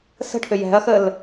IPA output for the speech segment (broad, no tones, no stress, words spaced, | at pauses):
sə̤ʈʰʏ jɛ̤ɐ̯xəl